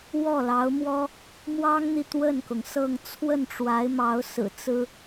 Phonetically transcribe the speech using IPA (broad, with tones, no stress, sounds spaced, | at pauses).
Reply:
w ɔ˥˩ l ɑ˧˥ ʊ̯ m w ɔ˥ | m w ɑ˥ ŋ n̪ i˨ t̪ w ə˥˩ n k ʊ˩ ŋ s ɤ˥˧ ŋ t͡sʰ w ə˥˩ n ʈ͡ʂ w a˧˥ ɪ̯ m ɑ˧˥ ʊ̯ s ɹ̩˨˩ t͡s ɹ̩˥